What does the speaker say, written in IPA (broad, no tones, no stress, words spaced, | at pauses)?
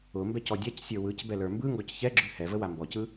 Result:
ʊmbɛc ɔdʲacsʲə˞ wɯc bɛlə˞mbɯŋɡɔc çɛɡ͡ǁʉ hɛvə wambɔcɯ